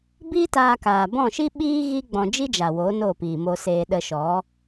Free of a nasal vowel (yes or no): no